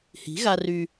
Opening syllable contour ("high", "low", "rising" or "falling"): rising